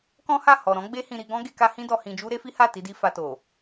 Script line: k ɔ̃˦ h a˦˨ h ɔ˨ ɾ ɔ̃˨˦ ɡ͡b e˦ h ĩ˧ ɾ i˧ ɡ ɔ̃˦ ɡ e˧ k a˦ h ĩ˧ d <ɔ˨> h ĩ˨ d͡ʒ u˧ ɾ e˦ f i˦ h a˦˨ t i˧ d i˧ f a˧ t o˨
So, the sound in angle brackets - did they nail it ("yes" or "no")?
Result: yes